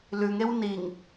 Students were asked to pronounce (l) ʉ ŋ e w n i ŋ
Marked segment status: correct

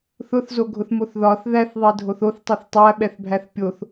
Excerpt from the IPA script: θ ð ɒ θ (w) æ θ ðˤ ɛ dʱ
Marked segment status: incorrect: ð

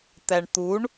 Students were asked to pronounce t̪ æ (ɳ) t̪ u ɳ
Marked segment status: correct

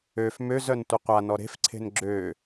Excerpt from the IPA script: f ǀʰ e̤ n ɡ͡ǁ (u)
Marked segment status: incorrect: ø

